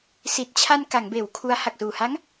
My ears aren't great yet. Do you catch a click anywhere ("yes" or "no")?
no